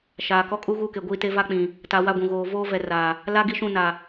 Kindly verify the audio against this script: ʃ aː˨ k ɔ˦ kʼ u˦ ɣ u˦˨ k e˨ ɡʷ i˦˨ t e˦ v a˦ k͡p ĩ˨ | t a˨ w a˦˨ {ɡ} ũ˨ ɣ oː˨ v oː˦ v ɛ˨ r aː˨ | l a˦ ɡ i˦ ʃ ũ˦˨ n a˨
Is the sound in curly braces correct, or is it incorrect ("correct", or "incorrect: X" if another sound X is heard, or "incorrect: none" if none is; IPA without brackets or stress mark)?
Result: incorrect: ɡʷ